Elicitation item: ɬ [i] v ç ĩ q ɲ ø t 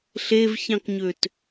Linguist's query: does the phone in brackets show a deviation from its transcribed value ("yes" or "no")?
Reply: yes